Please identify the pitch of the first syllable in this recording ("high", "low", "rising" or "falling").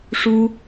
high